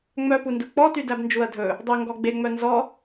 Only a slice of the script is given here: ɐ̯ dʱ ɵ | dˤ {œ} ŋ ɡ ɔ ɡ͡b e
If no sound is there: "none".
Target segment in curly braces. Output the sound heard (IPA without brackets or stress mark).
ɵ